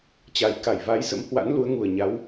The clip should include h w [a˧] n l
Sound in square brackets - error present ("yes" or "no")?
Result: yes